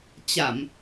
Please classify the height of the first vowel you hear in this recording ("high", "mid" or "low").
low